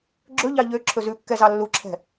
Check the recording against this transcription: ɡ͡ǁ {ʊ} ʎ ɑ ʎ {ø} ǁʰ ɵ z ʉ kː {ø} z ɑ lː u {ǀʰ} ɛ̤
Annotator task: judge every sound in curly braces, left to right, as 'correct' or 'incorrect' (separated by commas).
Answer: incorrect, correct, incorrect, incorrect